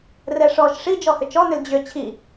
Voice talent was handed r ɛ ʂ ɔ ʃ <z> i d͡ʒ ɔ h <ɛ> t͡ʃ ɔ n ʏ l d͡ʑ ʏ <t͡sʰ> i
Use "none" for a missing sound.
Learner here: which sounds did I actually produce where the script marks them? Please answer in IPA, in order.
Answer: ʂ, ʏ, t͡ɕʰ

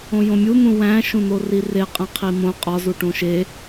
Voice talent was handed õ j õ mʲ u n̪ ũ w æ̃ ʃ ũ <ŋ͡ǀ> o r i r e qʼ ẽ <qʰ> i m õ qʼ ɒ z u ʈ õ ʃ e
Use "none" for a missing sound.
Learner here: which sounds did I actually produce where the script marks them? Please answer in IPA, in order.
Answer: n̪, qʰ

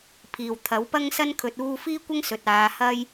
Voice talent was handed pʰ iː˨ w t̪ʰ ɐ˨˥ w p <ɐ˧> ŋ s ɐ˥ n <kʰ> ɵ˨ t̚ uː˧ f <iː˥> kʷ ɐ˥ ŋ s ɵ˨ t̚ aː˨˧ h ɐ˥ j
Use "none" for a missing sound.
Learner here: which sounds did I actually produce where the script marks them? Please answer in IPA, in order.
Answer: ɐ˥, kʰ, iː˥

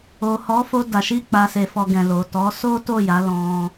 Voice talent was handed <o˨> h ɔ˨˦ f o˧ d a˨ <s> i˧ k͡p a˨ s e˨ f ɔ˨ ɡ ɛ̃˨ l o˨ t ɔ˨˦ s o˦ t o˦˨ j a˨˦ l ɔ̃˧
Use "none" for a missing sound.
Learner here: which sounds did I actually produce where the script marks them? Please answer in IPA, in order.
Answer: o˨, ʃ

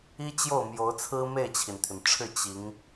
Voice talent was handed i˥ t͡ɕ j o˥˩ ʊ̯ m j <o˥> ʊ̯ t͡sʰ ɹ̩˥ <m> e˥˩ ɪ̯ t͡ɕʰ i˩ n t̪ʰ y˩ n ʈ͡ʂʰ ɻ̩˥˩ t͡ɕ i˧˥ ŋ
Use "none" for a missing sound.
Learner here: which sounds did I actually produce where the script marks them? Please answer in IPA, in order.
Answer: o˧˥, m

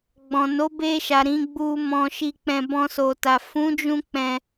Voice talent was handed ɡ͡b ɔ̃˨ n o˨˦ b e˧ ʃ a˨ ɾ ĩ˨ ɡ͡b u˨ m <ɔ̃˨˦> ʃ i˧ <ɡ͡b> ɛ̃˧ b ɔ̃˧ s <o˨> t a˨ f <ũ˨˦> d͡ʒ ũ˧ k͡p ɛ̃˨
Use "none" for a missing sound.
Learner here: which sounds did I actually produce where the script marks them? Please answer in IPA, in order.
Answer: ɔ̃˨˦, k͡p, o˨, ũ˨˦

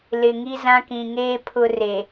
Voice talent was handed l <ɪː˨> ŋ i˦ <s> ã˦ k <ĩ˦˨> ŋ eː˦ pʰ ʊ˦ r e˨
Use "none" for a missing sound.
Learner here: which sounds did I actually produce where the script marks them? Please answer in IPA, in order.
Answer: ɪ˨, z, ĩ˨

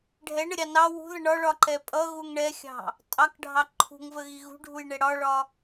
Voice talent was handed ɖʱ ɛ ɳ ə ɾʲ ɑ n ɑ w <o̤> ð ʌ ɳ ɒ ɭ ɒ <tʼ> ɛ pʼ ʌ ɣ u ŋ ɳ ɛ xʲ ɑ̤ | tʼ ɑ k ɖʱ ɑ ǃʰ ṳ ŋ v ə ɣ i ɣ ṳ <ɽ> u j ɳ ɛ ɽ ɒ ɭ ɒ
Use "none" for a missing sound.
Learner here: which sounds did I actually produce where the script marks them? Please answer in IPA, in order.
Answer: ṳ, ǃ, ɖʱ

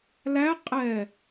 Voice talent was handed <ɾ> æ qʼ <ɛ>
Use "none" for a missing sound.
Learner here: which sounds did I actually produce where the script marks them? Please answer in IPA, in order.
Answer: l, ɛ

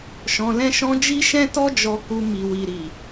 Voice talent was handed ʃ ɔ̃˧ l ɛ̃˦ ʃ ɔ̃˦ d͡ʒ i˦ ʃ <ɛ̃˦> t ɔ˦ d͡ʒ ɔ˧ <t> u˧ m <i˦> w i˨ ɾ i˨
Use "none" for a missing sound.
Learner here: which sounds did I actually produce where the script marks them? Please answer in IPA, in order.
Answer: ɛ̃˦, k, i˨

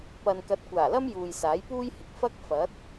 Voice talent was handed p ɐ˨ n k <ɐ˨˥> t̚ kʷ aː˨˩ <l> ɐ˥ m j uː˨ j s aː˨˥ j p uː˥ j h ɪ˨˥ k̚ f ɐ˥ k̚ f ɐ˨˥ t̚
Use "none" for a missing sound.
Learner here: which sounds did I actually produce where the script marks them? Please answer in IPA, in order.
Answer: ɐ˨˥, l

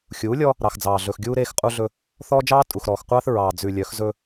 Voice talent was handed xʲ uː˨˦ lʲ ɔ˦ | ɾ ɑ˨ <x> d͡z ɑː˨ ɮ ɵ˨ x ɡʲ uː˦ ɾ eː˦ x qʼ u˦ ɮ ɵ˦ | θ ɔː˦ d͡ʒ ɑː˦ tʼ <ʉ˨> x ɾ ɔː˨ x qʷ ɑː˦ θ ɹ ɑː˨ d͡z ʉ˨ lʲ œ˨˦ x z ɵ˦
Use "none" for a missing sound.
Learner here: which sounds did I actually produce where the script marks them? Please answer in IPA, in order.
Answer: x, u˨

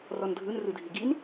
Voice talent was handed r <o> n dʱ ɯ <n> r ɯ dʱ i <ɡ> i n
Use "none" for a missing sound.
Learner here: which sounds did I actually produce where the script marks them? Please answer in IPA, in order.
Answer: ɔ, n, ɡ

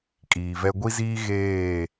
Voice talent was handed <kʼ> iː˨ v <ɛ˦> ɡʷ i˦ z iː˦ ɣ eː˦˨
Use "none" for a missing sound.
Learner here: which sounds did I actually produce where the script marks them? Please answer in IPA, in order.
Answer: kʼ, ɛ˦

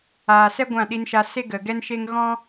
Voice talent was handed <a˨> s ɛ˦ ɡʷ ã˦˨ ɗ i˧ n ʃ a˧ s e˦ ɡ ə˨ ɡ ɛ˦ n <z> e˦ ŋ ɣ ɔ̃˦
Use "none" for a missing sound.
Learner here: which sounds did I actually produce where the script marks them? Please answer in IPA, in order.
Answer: aː˨, ʃ

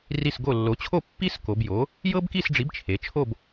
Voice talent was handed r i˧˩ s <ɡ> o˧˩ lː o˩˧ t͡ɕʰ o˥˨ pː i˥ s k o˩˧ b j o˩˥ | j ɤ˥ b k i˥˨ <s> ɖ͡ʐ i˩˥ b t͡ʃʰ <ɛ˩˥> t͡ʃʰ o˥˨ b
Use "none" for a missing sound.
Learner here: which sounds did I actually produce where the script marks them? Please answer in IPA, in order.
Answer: ɡ, s, e˩˥

